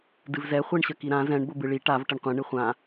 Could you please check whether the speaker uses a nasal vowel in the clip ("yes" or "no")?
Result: yes